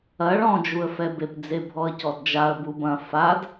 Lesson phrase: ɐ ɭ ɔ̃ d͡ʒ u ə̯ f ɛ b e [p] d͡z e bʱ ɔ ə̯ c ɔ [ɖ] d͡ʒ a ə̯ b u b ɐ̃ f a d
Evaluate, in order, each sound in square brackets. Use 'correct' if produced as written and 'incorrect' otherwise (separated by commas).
correct, incorrect